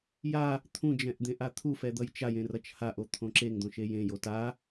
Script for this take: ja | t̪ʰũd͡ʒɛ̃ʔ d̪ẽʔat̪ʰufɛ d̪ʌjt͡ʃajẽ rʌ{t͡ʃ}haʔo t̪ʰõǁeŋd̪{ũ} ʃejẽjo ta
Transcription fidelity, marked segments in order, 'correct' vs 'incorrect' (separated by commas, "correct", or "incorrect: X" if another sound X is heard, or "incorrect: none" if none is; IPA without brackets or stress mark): correct, incorrect: õ